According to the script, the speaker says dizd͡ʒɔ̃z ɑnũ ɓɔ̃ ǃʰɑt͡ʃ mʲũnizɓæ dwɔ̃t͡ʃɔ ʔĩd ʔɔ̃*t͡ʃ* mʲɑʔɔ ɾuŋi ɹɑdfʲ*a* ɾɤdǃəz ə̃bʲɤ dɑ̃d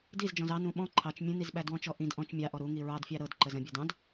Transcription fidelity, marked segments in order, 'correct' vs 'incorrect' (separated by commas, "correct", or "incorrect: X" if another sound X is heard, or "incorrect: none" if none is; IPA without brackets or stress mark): correct, incorrect: ɑ